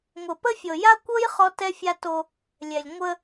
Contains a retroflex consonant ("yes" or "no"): no